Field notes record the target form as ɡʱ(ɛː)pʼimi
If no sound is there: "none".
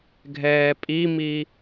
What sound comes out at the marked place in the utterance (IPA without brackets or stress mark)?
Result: ɛː